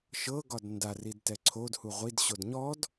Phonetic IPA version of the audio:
ʃ ɤ ɡ ɒ d n d a r i d t ɛ ǀʰ o d h u ʁʷ i d ɕ o d ɲ ɔ d

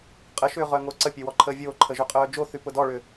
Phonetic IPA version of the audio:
qʼ ə ʃ ʏː ʁ œ ŋ o ǀ ə pʲ e w ɔ ǃʰ əː vʲ oː ǃʰ ə ʒ ø qʼ œː d͡ʒ o θ y p ʊ d ɔ ɭ ʏː

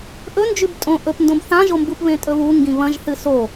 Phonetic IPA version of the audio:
ʔ ɵ n d͡ʒ ʉ b tʼ õ ʔ ɵ p n d õ b θ ã ʒ o m b u p β ẽ tʼ ɵ β u ŋ ɡ ĩ β ɐ̃ ʒ θ ɨ s o

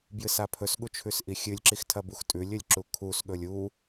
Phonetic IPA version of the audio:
b j ɨ s a pʰ ɵ s ɠ u t͡ʃʰ ʉ s ʔ i xʲ ɨ lʲ ǁ i x tʰ ɐ b u x tʼ ʉ lʲ ɵ lʲ ǁ u kʰ u s ɠ ɵ lʲ u

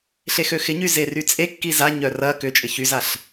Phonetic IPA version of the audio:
ɬ e x ø x ɪ ɲ y z e r y t͡sʼ e kː i z a ɲ œ r ɐ k ʏ t͡ʃʼ ɪ ç y z a ɬ

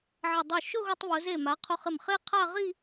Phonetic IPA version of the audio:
ʕ ɪ˧˩ dˤ o˧˩ ʃ ʊ˥˧ ɣ ʊ˧ tˤ β ʊ˩˧ z e˧˩ m a˩˧ qʰ ʊ˧ χ ɪ˧˩ m χ e˥˧ qʰ a˥˧ ʁ i˥˧

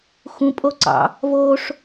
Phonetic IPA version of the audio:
x ũ pʼ o ǀ ɑ̰ | v o ʂ

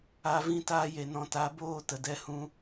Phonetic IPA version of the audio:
a˨ v ĩ˧ t aː˧ j e˨ n ɔ̃˨ t a˨˦ b oː˦˨ t ə˨ d ɛ˦ h ũ˧

